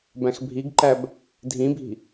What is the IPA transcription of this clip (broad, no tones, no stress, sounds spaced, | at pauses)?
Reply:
b æ̃ x bʱ i ɡ ǃ æ b | dʱ ĩ bʱ i̤